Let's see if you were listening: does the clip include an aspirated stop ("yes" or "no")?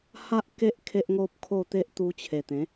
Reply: yes